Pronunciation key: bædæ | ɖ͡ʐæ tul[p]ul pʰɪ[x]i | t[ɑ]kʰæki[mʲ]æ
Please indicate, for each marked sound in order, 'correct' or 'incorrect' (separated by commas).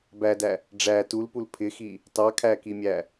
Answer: correct, correct, correct, correct